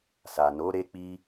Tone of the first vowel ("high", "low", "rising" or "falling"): low